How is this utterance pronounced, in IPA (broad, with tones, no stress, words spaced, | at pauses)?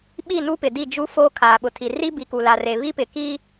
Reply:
ɓi˦˨nu˦pɪ˨ di˦˨d͡ʒu˦ foː˦kʰaː˨ɓʊ˨tʰi˨ ri˦ bi˨ku˨la˨re˨ βi˦pɪ˨ ki˦